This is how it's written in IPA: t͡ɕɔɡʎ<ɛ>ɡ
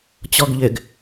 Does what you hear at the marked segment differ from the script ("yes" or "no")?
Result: yes